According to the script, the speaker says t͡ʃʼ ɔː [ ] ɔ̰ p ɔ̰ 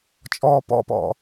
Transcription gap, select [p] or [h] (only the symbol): p